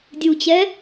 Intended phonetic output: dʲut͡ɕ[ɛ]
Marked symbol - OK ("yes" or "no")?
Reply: yes